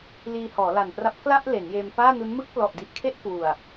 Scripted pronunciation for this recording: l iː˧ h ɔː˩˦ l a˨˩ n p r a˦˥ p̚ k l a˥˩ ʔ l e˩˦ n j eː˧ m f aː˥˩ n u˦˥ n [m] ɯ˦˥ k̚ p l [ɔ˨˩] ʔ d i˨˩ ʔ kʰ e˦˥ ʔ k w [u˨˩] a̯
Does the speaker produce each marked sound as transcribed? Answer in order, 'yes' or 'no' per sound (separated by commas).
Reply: yes, yes, yes